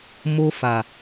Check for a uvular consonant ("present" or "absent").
absent